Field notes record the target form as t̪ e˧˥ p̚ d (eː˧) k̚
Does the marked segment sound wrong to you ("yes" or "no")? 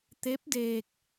no